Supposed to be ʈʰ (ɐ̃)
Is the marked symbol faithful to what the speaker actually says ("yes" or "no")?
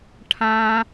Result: no